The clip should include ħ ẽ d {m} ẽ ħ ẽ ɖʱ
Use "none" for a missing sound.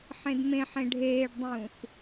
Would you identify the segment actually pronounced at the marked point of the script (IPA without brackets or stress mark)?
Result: m